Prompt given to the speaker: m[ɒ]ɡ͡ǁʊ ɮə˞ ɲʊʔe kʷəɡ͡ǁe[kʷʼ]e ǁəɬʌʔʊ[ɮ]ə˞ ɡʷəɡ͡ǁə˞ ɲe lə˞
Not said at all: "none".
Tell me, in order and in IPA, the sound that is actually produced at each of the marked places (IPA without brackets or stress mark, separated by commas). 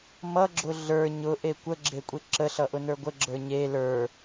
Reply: ʌ, kʷʼ, n